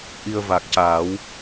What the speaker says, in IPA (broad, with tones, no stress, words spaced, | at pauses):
ʔi˧ə̯ va˨˩k̚caː˨˩˦w